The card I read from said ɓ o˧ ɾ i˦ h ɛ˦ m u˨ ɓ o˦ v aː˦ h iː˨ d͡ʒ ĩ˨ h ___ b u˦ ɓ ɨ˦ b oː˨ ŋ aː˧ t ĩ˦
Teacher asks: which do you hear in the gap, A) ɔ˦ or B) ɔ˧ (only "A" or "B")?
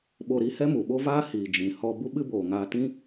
B